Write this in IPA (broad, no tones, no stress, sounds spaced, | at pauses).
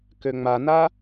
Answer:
k ø ŋ͡m a n a